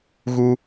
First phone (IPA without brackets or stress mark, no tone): ɣ